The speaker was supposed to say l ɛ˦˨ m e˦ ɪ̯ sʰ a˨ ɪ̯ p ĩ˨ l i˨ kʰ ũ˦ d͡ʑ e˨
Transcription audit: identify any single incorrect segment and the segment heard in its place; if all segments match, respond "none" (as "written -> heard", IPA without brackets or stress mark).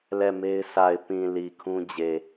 none